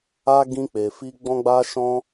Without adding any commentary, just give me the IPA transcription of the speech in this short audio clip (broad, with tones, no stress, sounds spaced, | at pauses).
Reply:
a˦ ɡ ĩ˧ k͡p e˨ f i˧ ɡ͡b ɔ̃˦ ɡ͡b a˦ ʃ ɔ̃˦